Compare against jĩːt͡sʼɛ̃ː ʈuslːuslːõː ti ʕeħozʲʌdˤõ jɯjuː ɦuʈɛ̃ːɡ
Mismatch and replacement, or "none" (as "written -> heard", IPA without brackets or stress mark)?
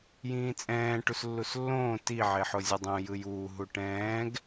none